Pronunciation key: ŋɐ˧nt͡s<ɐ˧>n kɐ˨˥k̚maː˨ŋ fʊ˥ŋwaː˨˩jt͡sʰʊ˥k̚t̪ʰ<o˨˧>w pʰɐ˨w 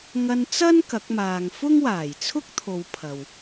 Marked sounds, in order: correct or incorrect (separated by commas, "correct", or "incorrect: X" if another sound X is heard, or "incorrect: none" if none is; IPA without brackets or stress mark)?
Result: incorrect: ɐ˥, correct